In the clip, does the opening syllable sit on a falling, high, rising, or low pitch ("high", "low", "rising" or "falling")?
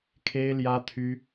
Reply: high